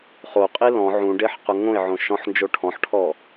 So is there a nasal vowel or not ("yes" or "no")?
yes